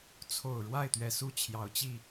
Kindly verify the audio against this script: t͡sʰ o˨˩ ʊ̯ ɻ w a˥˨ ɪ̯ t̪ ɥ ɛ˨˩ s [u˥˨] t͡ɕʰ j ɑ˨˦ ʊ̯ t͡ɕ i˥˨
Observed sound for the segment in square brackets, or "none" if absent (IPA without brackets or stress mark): u˥˨